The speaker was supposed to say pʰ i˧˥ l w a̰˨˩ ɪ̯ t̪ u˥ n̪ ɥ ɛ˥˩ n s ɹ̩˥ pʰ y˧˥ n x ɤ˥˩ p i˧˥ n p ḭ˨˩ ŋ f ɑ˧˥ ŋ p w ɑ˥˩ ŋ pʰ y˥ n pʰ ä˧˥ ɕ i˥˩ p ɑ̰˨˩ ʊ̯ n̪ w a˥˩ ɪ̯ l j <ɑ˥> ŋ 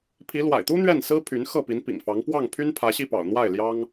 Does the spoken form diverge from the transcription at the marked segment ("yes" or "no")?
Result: no